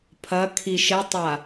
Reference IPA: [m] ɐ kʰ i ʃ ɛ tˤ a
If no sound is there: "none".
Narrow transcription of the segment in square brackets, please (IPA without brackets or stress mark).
pʰ